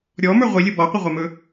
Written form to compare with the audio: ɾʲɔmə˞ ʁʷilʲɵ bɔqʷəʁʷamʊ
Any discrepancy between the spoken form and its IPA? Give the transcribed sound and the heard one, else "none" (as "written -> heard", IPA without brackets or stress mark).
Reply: ʊ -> ɵ